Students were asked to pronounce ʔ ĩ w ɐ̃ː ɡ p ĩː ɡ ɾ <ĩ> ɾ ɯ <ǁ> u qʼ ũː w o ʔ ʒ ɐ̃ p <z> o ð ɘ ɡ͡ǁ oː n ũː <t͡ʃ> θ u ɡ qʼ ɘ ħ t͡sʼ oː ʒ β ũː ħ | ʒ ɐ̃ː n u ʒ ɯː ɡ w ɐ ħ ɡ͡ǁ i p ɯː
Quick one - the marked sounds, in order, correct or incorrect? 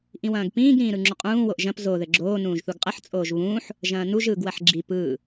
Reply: incorrect, incorrect, correct, incorrect

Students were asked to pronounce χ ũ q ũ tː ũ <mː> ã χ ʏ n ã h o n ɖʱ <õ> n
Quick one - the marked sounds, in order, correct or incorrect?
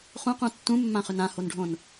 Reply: correct, correct

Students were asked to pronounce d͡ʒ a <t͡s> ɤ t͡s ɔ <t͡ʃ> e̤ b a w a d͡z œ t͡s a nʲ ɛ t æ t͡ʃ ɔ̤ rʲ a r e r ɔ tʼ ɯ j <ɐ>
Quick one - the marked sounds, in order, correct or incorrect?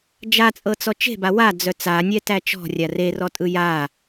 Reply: incorrect, correct, incorrect

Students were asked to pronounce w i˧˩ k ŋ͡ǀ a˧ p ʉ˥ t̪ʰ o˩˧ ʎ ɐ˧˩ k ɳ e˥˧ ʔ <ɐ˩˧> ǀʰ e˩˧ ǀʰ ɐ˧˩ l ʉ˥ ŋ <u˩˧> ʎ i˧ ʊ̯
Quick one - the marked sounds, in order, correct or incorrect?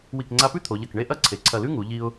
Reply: incorrect, correct

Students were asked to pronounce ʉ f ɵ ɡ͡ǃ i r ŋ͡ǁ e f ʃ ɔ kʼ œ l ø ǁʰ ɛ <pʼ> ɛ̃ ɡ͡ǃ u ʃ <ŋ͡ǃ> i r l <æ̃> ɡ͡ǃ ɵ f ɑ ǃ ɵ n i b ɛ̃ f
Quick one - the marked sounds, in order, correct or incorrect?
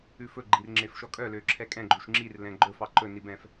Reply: incorrect, incorrect, incorrect

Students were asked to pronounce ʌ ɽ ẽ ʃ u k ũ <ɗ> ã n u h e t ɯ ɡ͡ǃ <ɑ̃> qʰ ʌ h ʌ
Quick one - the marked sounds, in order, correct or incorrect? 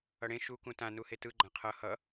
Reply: incorrect, incorrect

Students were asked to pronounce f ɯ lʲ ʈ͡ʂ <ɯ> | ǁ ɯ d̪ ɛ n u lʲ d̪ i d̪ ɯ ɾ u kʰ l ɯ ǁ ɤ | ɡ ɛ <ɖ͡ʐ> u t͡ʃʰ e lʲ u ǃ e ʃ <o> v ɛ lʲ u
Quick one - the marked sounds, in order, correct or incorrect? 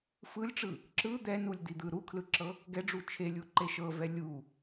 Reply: correct, correct, incorrect

